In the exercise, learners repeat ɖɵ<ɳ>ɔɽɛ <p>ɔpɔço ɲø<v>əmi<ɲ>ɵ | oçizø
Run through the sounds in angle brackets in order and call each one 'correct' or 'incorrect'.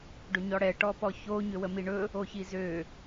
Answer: incorrect, incorrect, incorrect, incorrect

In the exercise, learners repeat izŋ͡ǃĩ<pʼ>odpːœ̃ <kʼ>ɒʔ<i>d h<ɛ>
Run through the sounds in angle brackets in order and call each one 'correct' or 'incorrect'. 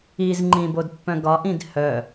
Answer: incorrect, incorrect, incorrect, incorrect

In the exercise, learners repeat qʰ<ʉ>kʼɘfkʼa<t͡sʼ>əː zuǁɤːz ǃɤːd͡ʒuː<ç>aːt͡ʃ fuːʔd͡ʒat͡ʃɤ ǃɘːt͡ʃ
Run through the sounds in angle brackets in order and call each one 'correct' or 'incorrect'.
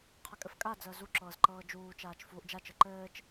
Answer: incorrect, incorrect, incorrect

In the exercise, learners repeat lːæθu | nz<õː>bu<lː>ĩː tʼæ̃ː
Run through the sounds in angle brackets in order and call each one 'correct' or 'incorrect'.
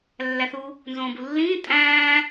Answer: correct, correct

